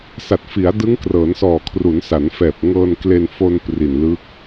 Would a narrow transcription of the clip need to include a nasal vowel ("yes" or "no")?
no